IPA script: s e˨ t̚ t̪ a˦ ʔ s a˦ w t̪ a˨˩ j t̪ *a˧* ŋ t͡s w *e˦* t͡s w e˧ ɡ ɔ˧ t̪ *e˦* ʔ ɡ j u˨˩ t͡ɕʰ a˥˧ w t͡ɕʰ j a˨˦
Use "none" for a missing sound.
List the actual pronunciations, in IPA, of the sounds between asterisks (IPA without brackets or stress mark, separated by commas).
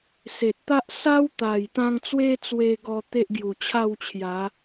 ã˧, e˦, e˦